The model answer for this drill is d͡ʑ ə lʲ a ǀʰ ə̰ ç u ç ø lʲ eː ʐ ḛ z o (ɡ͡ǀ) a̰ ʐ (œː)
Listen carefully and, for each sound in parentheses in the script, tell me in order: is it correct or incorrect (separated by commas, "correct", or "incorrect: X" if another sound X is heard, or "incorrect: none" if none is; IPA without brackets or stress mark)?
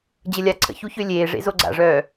correct, correct